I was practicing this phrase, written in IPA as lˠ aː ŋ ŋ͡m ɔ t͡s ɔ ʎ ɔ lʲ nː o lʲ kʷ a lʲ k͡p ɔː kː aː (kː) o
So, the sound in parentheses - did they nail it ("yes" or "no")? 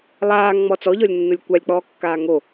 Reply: no